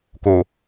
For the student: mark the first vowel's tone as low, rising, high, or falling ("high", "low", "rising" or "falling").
low